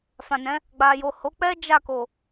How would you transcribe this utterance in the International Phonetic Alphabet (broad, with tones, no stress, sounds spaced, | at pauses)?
f ã˨ n ɛ̃˨˦ | ɡ͡b a˨ j o˨ h o˨˦ k͡p ɛ˦ d͡ʒ a˦˨ k o˨